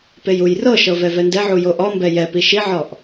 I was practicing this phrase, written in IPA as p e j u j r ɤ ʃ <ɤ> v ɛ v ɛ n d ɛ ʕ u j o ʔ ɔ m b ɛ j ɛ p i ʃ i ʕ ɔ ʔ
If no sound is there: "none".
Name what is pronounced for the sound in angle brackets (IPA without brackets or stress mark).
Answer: ɤ